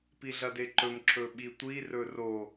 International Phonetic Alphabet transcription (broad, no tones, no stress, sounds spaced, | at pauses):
p i ɮ ɐ d e ǃ ɵ m ǁ ɵ ɓ i tʷ i r ɵ r o